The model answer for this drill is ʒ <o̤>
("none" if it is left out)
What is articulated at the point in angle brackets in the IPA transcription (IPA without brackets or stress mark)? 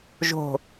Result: o̤